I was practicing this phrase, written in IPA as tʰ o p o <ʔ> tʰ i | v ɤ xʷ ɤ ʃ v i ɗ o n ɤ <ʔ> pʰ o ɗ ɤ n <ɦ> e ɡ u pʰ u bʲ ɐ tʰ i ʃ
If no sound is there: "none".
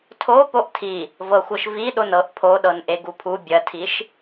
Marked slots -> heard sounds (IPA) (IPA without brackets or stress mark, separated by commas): ʔ, ʔ, ʔ